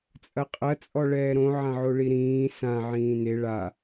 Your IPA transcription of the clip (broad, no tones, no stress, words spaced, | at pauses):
t͡sʼɐqʼɐ t͡sʼɔɭɛːɾõ ʕãʕoɭiɾĩː sã ʕĩːne ɭa